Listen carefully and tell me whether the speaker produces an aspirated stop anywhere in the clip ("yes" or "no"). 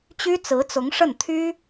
yes